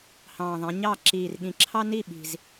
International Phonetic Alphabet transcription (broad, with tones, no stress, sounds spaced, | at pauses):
h ɑ̃ː˨˩ ðˤ æ̃˩˧ ɲ ɑ˥˩ ǁ iː˨˩ r ɠ ĩ˨˩ ǁʰ ɑ˥ n i˥˩ ɓ i̤˨˩ z